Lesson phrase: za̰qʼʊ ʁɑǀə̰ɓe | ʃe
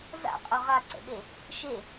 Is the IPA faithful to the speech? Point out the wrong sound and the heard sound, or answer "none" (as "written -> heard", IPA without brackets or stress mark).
ɑ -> a